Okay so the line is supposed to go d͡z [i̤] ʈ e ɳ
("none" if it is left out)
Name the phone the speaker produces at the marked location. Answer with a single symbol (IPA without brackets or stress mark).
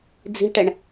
i̤